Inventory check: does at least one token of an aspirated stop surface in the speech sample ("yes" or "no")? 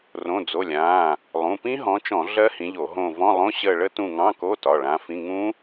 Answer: no